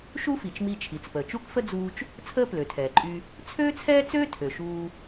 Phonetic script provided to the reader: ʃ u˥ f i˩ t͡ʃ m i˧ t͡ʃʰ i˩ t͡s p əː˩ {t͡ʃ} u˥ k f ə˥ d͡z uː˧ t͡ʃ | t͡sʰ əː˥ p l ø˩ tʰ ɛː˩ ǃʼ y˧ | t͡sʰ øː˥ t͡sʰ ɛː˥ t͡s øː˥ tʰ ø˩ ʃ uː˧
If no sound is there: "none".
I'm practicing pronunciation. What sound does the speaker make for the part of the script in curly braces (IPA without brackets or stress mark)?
t͡ʃ